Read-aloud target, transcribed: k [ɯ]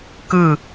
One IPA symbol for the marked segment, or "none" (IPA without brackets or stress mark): ɯ